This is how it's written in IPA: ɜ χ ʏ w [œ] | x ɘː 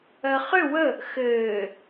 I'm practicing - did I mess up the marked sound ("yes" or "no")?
yes